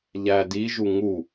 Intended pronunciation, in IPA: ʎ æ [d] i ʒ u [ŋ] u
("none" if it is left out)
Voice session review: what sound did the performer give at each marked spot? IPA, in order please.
d, ŋ

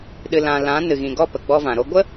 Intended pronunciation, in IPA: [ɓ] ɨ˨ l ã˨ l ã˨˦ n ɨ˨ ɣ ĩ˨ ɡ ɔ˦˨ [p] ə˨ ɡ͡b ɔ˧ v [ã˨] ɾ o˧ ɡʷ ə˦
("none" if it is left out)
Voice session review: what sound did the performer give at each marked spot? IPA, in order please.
ɗ, p, ã˨

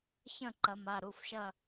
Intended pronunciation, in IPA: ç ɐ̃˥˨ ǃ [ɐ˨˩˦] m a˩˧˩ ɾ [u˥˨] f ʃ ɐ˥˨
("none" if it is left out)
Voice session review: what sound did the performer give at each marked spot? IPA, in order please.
ɐ˨˩˦, u˩˧˩

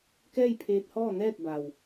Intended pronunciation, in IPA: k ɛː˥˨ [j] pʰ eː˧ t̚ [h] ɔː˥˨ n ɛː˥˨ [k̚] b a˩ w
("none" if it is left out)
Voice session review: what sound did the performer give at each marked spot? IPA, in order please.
j, h, t̚

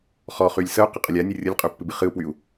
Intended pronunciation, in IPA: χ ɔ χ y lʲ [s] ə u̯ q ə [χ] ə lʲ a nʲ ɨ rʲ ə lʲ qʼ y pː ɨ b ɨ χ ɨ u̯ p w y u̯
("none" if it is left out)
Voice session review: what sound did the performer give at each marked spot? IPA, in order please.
s, qʼ

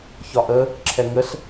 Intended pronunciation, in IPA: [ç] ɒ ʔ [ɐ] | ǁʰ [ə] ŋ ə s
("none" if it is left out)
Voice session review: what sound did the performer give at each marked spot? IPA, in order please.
ç, ə, ɛ

